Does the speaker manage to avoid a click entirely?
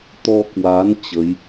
yes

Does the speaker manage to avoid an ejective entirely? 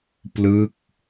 yes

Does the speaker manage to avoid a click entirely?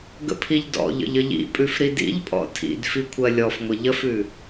yes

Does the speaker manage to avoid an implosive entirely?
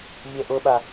no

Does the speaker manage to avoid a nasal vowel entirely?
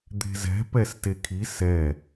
yes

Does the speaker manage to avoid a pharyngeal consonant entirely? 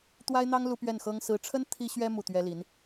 yes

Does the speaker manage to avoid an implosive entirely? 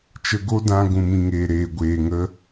yes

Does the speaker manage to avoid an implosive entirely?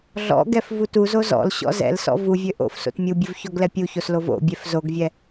yes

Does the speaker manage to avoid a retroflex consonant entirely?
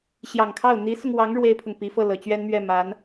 no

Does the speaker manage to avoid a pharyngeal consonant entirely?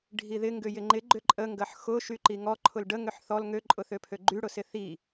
no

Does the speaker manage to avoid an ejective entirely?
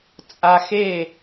no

